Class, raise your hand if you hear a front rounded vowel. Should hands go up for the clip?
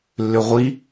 yes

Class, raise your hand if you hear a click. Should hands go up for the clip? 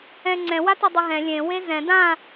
yes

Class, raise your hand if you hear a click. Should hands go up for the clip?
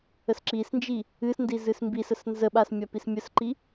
yes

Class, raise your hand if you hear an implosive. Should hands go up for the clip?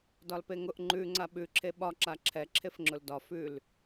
yes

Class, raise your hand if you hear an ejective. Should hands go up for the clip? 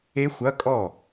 yes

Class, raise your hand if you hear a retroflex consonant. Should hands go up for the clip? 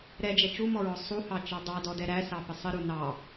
no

